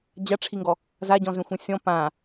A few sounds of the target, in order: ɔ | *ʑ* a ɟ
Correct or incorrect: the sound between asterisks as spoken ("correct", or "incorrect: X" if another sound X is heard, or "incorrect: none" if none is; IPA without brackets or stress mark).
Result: incorrect: z